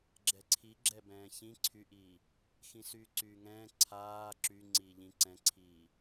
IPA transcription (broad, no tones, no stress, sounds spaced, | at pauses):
ɡ͡ǁ ɛ ǀʰ i ɡ͡ǁ ɛ b ɛ̃ː ç ĩ ǀʰ y ʔ iː | x ĩ s yː ǀ yː ŋ ɛ̃ː ǀʰ aː ǁ y ŋ͡ǀ iː ʎ ĩ ǀ ɛ̃ ǀʰ iː